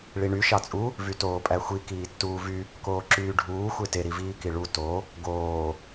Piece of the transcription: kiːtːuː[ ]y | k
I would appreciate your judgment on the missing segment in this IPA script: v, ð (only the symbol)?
v